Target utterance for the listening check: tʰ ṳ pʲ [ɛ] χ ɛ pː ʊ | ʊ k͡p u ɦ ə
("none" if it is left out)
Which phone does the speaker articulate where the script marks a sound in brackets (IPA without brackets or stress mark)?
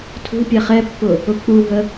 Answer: ɛ